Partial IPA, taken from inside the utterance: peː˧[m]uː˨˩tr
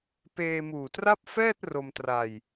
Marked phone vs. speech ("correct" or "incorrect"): correct